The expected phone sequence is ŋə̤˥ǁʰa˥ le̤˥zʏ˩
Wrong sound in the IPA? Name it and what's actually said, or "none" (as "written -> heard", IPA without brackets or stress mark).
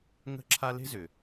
none